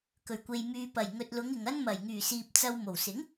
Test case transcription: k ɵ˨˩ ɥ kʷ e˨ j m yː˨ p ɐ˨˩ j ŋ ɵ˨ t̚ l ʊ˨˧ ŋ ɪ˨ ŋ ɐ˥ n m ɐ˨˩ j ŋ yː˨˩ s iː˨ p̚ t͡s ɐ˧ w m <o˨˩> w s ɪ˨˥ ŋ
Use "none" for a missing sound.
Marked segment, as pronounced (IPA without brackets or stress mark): o˨˩